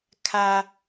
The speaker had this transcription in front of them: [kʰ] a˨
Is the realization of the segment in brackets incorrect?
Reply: no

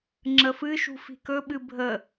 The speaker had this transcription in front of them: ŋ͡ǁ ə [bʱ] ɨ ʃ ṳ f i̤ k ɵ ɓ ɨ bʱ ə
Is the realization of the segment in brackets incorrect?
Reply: yes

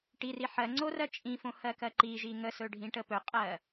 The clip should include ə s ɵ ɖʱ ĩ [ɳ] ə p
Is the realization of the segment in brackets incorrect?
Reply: yes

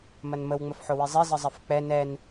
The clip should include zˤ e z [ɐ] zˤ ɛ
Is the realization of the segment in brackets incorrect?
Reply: yes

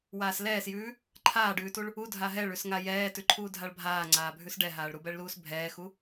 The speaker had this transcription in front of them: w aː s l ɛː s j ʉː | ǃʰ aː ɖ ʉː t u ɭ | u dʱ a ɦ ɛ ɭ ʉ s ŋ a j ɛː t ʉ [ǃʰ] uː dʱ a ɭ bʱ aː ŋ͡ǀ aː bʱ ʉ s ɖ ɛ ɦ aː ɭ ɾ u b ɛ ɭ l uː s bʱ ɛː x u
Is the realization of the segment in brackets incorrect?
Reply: no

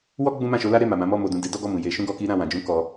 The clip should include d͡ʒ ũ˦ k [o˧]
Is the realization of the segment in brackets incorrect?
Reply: yes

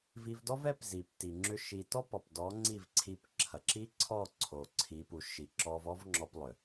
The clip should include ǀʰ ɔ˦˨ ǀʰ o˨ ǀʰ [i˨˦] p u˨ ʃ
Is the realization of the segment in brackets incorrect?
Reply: no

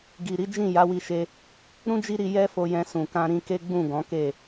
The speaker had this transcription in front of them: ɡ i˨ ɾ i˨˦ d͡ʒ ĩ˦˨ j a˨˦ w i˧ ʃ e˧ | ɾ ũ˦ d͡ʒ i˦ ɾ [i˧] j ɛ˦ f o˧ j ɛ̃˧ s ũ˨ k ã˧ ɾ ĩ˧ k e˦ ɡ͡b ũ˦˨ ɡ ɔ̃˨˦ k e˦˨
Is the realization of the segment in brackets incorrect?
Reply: no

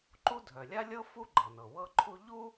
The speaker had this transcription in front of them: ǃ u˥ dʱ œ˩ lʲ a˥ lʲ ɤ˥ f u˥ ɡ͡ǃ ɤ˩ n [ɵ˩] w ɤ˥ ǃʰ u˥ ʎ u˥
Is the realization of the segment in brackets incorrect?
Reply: yes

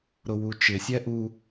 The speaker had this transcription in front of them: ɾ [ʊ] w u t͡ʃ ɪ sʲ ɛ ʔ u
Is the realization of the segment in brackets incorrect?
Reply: no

